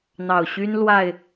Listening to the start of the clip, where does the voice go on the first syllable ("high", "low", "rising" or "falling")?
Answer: low